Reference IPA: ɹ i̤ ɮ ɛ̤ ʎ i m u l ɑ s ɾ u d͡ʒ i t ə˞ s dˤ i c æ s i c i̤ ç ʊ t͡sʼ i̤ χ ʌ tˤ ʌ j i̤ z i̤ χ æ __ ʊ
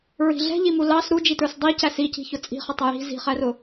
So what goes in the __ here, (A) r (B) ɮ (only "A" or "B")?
A